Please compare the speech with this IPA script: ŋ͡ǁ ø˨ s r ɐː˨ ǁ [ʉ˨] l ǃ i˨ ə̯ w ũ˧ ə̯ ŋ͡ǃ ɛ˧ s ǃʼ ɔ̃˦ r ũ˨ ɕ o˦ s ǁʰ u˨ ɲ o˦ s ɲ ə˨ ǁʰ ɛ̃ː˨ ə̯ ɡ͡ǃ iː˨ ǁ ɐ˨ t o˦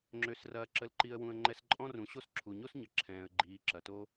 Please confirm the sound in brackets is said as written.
no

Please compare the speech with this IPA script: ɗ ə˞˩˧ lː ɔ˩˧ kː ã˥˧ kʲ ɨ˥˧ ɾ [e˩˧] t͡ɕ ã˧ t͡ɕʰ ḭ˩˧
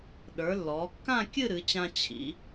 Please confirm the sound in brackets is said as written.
no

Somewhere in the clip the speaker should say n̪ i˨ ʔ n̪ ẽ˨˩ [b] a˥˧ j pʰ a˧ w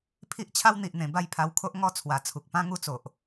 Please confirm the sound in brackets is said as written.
yes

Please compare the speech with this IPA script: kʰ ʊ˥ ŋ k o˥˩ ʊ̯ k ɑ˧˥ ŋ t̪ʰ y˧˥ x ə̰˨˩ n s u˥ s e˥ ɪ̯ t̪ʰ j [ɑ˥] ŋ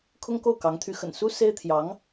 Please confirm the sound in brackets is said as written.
no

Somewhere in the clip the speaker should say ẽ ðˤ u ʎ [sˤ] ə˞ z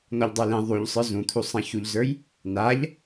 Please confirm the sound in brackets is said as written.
yes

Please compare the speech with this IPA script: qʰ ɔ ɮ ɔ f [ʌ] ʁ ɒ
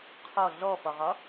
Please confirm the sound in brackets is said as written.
no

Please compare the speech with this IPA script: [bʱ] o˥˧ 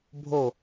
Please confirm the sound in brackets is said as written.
yes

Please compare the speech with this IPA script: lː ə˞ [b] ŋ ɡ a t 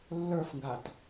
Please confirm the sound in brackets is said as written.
no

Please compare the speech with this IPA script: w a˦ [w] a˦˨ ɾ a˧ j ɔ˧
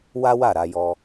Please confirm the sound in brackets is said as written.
yes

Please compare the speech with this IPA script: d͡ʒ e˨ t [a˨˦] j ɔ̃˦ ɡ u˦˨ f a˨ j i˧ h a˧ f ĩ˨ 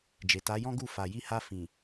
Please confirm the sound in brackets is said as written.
yes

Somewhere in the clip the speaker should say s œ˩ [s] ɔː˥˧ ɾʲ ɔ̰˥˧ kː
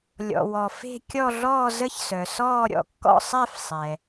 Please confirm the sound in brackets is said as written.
yes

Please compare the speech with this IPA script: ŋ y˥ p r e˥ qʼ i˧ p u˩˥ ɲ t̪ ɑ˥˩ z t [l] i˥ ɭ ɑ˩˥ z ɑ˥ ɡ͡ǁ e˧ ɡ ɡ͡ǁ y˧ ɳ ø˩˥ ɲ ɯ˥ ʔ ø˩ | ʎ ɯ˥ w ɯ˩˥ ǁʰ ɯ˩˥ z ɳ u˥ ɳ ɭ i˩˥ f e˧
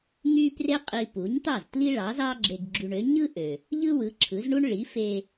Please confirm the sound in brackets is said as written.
yes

